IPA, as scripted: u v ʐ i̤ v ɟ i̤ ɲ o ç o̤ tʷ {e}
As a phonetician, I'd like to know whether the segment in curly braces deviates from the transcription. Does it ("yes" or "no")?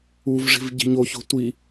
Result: yes